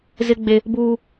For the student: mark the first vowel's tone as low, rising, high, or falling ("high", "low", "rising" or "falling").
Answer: high